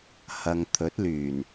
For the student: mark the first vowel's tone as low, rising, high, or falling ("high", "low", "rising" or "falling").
low